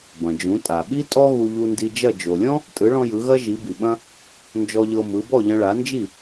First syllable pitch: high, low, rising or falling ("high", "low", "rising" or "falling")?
low